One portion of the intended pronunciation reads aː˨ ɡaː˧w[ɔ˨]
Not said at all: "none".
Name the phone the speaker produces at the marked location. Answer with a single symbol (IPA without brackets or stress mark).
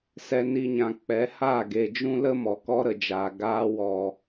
ɔ˨